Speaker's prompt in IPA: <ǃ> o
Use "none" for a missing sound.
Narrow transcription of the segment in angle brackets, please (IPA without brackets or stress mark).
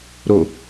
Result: ɾ